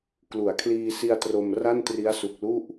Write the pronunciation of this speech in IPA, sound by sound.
k l u˩˦ a̯ kʰ l iː˧ s i˧ a̯ t r o˧ m r a˥˩ n t r i˦˥ a̯ s u˨˩ k̚ l u˥˩ ʔ

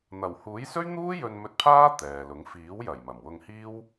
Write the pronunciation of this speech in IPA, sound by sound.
n̪ ɐ˨˩ w h uː˨˥ j s ɵ˥ ɥ n̪ uː˥ j ɵ˧ n m ɵ˧ t̚ pʰ aː˥ t̪ ɛː˨ l ʊ˨˥ ŋ f iː˨˥ w j ɐ˨˩ j m ɐ˨˩ m w ʊ˧ ŋ h iː˥ w

